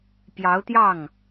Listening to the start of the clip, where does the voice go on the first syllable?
rising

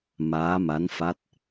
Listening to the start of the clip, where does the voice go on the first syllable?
rising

